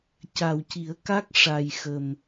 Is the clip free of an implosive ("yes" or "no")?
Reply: yes